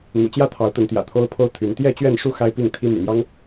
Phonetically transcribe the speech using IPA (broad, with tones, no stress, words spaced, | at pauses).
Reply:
n̪ṵ˨˩t͡ɕjä˥˨ t̪ʰɑ˨˦ʊ̯t̪ə˨˦nt̪jä̰˨˩ t̪ʰo˦ʊ̯pʰo˦ʊ̯t̪ʰy˨˦n t̪jɛ˥˨ t͡ɕɥɛ˥˨nʂu˥˨ xa˦ɪ̯pi˥˨ŋt̪ʰi˦ my̰˨˩mjɑ˦ŋ